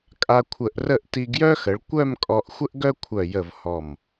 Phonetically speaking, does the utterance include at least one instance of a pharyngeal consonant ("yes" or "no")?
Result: no